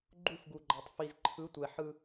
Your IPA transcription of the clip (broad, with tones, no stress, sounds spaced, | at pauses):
ɡ͡ǃ u˦˨ f ɡ u˨ ɡ͡ǃ a˨ tˤ f i˨ z ǃʰ ɯ˨˦ tʷ ɛ˨ ħ ɯ˦